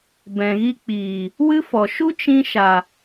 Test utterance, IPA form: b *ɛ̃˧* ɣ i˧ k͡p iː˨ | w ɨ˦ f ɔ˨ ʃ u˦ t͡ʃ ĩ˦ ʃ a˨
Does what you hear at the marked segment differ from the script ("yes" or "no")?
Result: yes